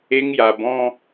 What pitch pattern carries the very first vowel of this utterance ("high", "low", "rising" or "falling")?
high